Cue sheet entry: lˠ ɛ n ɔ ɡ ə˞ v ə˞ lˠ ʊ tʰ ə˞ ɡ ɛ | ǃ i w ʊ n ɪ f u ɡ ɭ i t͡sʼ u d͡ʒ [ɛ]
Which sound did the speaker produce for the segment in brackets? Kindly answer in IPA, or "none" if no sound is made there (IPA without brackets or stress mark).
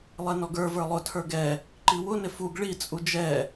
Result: ɛ